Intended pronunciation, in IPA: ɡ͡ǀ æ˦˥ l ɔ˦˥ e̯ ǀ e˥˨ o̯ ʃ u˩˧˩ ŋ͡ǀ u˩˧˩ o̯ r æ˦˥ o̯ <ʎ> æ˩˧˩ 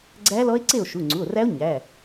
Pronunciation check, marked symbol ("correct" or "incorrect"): incorrect